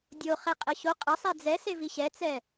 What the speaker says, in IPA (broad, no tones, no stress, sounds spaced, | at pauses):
dʲ o χ ɛ qʼ ə ɕ o qʼ ə sˤ ɛ d͡z ɛ s e v i ɕ ɛ t͡s ɛ